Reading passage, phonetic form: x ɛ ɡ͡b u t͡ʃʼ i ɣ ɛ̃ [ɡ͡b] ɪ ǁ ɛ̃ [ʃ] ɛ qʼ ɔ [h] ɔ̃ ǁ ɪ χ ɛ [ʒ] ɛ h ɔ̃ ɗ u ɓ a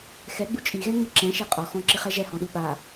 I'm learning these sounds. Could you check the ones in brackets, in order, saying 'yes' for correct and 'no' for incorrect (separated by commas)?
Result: no, yes, no, yes